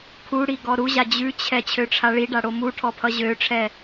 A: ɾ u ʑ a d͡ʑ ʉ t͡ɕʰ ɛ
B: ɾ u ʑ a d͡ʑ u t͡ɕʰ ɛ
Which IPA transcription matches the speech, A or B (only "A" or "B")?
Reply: A